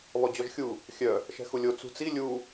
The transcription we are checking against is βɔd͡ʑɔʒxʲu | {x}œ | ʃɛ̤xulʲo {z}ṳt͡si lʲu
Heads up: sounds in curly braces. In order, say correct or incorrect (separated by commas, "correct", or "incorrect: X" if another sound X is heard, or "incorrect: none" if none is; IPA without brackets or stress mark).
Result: incorrect: xʲ, incorrect: t͡s